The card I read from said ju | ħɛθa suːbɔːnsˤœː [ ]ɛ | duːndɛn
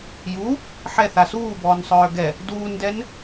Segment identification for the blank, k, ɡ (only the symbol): ɡ